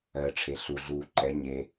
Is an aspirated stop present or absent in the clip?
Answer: present